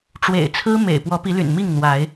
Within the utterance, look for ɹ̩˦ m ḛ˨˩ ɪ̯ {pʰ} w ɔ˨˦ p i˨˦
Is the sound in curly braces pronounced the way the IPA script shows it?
no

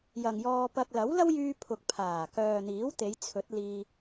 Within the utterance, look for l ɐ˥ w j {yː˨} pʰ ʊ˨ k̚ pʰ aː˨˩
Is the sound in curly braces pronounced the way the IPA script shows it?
no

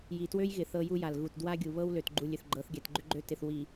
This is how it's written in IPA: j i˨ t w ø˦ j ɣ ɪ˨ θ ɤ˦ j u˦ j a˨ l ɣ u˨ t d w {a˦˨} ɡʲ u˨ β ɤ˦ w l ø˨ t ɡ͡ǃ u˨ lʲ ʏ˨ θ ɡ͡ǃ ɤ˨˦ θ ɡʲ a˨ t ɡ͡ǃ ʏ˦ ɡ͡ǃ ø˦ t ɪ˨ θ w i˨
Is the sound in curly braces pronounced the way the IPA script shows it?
no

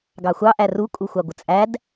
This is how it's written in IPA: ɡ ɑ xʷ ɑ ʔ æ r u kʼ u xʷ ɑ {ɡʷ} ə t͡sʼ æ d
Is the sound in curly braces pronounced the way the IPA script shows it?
yes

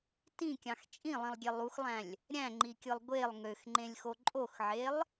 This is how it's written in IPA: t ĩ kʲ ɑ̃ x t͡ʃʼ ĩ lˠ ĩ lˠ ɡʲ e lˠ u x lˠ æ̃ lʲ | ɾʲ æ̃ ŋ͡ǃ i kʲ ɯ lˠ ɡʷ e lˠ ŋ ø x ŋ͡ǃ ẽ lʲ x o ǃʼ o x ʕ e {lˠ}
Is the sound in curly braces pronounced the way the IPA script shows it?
yes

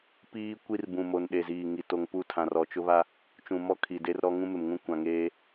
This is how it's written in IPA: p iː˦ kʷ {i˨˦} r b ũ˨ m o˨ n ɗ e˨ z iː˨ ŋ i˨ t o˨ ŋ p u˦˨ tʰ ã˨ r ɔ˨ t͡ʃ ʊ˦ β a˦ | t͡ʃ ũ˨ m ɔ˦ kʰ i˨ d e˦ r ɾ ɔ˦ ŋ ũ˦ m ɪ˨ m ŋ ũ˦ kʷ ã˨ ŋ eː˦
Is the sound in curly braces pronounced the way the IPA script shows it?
no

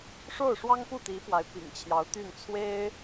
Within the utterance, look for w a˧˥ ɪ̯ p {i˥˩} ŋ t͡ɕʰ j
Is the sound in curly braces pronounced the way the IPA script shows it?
no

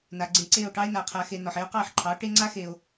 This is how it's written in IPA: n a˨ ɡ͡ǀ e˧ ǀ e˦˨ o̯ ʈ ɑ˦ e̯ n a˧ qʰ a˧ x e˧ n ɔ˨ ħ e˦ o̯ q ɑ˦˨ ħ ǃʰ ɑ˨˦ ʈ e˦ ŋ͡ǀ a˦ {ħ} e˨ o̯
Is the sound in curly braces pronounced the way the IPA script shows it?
no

